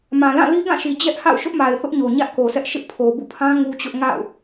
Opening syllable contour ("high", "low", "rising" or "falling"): low